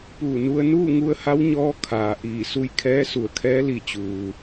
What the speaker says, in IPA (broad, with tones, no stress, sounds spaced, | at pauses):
p uː˧˩ n u˧ ə̯ n uː˥˨ ŋ u˧ ə̯ h a˧˥ w ɲ ɔː˧˥ kʰ aː˩ ʔ iː˧˩ s u˧ j kʰ ɛː˧˥ s u˧˩ ə̯ kʰ ɛː˧˥ l i˧˩ t͡ɕ uː˩